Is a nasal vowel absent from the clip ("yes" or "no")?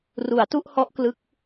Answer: yes